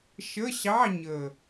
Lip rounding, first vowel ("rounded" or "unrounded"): unrounded